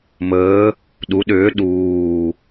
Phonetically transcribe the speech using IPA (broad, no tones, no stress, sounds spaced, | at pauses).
m əː | ɗ u ɗ ʏː ɗ uː